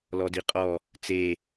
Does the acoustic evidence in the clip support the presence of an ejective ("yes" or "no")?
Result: yes